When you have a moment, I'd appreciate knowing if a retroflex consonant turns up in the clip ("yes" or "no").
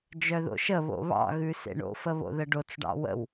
yes